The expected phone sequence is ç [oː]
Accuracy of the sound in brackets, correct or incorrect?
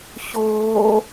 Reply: correct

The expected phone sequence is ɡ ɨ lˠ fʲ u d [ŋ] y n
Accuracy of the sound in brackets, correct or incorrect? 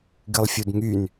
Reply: correct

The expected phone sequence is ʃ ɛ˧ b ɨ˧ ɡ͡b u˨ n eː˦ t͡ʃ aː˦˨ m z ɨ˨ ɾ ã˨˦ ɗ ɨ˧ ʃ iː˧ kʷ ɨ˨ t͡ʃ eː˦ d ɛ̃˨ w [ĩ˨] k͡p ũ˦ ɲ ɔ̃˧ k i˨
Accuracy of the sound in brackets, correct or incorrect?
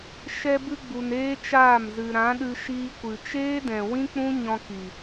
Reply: incorrect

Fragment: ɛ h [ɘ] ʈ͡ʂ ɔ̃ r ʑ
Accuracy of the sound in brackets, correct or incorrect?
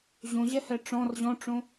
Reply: incorrect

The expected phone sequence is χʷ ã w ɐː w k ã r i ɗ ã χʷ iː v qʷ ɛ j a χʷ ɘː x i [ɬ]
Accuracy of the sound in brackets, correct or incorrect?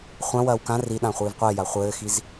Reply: incorrect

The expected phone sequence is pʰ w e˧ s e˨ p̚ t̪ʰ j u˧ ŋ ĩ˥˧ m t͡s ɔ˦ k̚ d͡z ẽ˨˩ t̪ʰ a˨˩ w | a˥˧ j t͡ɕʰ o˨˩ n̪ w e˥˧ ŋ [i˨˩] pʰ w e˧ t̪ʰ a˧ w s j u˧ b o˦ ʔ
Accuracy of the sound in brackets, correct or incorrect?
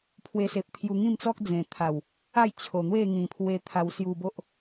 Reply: incorrect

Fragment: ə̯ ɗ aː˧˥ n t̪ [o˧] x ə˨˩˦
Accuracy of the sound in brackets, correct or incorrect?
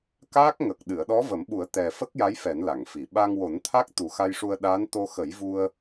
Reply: correct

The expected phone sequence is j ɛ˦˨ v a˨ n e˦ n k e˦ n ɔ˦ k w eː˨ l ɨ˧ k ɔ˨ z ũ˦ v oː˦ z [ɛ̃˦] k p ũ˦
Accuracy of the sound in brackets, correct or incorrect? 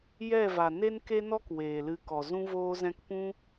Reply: correct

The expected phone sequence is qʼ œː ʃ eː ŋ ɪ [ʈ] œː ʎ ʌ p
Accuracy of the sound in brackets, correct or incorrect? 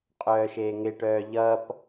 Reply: correct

